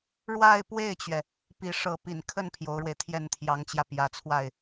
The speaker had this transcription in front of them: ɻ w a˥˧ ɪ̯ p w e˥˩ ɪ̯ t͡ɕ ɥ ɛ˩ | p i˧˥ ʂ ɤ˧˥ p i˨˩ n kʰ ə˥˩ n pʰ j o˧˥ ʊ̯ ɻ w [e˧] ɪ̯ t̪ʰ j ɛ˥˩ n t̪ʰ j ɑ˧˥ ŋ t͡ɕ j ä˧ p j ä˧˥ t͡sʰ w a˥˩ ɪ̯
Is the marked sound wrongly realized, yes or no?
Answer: no